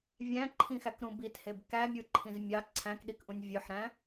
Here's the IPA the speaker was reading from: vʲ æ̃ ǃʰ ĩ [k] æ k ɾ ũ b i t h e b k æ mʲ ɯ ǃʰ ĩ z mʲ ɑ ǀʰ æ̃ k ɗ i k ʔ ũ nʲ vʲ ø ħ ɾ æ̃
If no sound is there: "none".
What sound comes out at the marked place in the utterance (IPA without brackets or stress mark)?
x